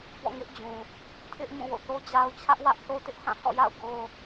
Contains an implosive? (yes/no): no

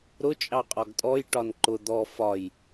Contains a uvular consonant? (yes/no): yes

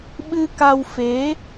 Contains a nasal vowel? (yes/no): no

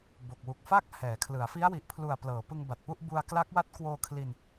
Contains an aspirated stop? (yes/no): yes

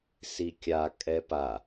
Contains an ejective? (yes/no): yes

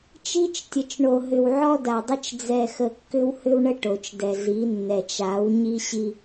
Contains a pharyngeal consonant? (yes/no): yes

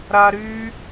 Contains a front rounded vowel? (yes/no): yes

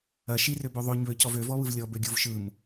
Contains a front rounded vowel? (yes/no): yes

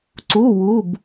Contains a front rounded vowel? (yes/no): no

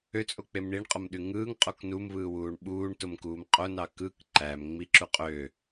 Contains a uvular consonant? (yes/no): yes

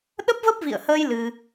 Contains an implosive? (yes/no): yes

